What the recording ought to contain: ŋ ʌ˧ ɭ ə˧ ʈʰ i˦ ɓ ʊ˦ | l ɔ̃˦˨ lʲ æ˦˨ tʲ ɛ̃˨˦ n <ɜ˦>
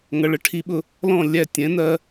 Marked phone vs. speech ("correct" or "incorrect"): correct